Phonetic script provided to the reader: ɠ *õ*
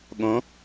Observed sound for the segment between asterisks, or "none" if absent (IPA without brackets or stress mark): õ